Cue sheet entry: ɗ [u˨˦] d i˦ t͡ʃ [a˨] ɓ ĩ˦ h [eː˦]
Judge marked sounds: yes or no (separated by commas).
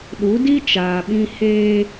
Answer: yes, no, yes